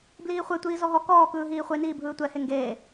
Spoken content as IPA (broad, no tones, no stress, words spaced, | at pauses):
bliːχʷetʷiː zɔɦɔ kɔːkɯː ɦiːχʷeniː bʱɯːtʷɛhe ŋɡeː